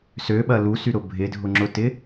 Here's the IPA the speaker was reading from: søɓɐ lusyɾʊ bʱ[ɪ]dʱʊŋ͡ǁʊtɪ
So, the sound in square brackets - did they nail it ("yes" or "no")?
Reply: yes